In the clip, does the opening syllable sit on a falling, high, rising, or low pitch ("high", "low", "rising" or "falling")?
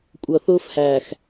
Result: low